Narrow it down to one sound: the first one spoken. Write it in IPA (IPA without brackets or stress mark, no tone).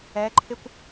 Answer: ɛ